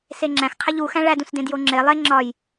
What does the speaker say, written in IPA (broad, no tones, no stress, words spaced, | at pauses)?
seŋ͡ǁæ̃x qʰæʎu xæ̃ɭæd ũsdẽdjoŋ͡ǁe lˠe ŋ͡ǁɒj